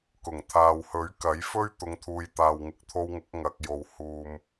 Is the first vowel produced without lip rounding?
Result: no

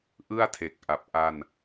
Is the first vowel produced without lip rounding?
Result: yes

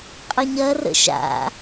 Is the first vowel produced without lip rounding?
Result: yes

